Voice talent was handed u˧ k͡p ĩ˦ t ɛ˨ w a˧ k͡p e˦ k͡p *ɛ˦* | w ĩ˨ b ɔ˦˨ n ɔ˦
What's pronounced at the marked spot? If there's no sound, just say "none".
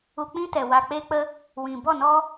ə˦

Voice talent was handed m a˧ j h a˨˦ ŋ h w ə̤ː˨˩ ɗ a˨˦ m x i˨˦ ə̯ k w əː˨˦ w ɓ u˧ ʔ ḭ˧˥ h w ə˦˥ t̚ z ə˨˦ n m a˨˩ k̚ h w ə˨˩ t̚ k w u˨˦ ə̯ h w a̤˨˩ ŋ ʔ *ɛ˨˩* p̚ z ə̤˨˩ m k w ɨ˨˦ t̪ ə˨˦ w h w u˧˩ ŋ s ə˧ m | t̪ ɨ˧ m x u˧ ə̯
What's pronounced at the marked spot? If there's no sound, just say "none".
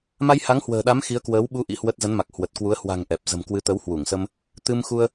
ɛ˨˩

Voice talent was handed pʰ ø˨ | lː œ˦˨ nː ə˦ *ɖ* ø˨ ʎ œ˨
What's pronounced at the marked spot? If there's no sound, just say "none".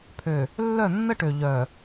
ʈ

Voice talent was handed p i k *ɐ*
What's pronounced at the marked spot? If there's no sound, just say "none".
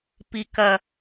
ɐ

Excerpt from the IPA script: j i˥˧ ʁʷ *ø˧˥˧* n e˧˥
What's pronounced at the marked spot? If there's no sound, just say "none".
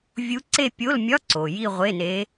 e˧˥˧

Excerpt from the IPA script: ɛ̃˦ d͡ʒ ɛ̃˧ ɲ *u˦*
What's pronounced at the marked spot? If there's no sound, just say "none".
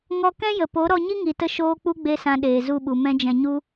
u˦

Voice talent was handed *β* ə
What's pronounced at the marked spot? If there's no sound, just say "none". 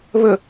β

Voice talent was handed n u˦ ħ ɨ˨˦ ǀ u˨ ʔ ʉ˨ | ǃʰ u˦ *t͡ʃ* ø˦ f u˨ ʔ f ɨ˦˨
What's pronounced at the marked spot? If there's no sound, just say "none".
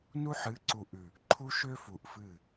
ʃ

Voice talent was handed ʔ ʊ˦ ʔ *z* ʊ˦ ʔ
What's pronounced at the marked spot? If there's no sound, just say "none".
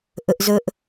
z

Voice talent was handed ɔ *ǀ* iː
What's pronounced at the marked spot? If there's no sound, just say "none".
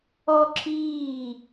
ǁ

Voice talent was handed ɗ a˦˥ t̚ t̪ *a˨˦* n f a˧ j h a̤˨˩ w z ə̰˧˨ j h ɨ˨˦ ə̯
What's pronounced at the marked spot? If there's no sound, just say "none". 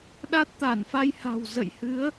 a˧˩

